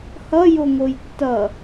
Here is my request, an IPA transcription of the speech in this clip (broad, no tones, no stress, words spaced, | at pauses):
hʌjoŋoj tːʌ